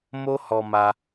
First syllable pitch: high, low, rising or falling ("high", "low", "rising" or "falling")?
high